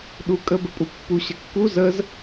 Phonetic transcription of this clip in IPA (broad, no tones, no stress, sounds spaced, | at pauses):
ɗ u kʼ ə b ə pʼ u pː u ɕ ə kː u z ə z